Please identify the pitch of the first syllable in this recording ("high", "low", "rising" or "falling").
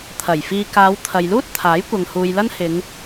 low